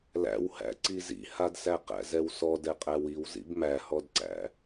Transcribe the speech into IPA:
læ̰whæ̰ ǀizḭhadsæ qæ̰zɛwsɔ dɛqʼæwiwzḭb mæhɔdǀæ̰

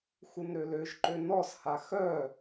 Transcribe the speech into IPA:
xunɾøløʒǃø nɔsha xœ

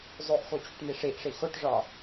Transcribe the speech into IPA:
zˤoʔxot͡ɕuʈni ʂiʔʂi xoʈʐɒ

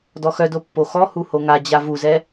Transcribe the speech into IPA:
dɔxœdo pːoxɔ huhoŋa d͡ʑavuzɛ

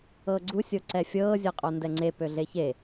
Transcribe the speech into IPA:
ɤːɡ͡ǀu sʲoǀɛfʲɤː zʲɤqʼondɛŋ͡ǀe pøɮeçe

